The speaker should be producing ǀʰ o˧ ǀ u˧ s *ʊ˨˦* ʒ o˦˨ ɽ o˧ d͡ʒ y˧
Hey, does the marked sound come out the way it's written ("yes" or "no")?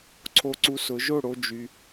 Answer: yes